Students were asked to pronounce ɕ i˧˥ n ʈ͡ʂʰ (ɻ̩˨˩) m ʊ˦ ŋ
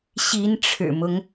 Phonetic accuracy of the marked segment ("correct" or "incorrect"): correct